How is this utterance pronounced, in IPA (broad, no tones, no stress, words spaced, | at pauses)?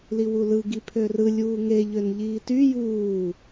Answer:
liwulɯ ɡipʰørɯ lʲuːŋe ʎønʎiːty juː